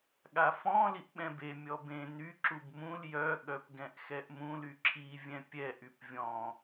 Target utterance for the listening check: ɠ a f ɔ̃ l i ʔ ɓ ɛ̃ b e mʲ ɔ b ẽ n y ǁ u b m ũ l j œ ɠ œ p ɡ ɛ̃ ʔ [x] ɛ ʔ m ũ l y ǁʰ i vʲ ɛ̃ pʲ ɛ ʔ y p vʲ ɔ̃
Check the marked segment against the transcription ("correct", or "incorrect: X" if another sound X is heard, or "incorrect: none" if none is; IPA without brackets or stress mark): correct